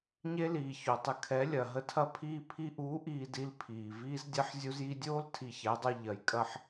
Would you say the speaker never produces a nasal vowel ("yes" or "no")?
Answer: yes